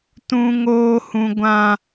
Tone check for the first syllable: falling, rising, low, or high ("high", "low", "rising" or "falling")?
high